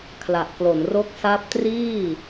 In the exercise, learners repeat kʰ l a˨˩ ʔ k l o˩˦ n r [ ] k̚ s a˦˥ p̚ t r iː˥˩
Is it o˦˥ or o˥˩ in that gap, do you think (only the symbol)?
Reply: o˦˥